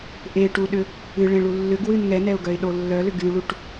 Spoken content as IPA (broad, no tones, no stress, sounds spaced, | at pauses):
ʔ e ʈ u ɗ ʏ | ɨ ɭ ẽ ɭ u lː ʏ ɡ w ɨ n ŋ ɛ n ɛ ʊ̯ ɡ œ ɪ̯ ɗ o lː œ l ʏ ɡ y ɭ u ʈ